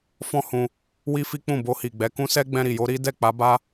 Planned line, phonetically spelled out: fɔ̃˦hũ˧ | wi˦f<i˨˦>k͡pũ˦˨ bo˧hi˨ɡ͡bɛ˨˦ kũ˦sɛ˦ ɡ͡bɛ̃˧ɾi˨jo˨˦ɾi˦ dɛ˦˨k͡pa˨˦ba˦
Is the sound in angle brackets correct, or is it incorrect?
incorrect